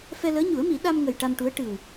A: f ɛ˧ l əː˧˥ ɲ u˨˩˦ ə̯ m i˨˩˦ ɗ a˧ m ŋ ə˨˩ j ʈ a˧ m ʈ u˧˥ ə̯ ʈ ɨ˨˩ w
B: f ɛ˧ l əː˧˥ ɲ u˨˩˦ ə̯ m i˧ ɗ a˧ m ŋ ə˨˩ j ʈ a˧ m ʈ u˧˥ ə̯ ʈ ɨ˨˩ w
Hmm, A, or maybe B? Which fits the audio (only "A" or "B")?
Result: A